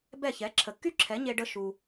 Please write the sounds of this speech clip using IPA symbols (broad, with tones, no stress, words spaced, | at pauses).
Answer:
bɛ˥˩ çɛ˩˥ǁʰə˩kːy˥ǁʰɛ˩˥ ɲe˧ɖə˧ ʃu˩